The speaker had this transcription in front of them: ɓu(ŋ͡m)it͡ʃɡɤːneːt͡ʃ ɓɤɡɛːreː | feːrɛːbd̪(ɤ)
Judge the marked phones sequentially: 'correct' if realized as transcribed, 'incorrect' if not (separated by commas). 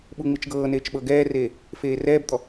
correct, incorrect